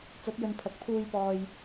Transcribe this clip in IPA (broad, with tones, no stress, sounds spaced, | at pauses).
t͡s ɐ˨˥ t̚ j ɵ˨˧ n pʰ ɐ˨ k̚ pʰ uː˧ j p ɔː˨ j